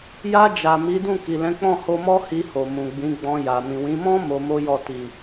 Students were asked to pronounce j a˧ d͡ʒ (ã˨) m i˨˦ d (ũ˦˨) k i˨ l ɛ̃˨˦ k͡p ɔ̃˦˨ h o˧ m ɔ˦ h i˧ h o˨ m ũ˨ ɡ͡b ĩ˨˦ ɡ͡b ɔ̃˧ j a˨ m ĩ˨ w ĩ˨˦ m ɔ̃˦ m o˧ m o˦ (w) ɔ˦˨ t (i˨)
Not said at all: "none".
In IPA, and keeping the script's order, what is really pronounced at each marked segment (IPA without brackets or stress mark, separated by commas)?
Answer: a˨, ũ˦˨, j, i˨